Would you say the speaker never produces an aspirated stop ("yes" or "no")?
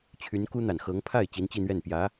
no